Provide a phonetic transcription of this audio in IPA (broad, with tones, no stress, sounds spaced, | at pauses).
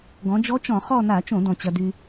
ɡ ɔ̃˩˧ d͡ʒ ɔ˧˥ t͡ʃ ɔ̃˧˩˧ χ ɔ˦˨ n a˧˩˧ t͡ʃ õ˧˩˧ d ɔ̃˩ t͡ɕ ɐ˩ d y˩